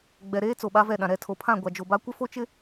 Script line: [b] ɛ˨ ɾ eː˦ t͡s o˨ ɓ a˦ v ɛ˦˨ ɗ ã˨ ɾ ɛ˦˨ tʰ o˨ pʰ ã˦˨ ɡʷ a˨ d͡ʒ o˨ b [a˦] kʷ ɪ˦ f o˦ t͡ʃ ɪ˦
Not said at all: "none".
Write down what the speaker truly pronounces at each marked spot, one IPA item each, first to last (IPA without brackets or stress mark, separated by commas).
ɡ͡b, a˦